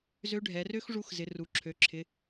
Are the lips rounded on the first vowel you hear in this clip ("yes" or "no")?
yes